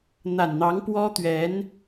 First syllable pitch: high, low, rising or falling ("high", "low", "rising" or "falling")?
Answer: low